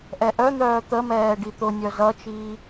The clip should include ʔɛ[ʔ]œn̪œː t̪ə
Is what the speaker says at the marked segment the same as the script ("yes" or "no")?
yes